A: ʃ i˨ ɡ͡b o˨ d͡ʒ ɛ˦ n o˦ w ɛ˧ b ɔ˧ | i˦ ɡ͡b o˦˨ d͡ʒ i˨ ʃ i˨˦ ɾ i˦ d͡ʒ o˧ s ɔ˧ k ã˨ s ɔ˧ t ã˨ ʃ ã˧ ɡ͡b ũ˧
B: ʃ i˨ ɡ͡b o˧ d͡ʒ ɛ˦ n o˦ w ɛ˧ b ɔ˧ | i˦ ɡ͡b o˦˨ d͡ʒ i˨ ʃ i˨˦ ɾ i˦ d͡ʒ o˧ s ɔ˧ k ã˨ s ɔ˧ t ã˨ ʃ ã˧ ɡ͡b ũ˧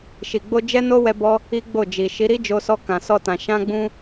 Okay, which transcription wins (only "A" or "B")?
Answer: B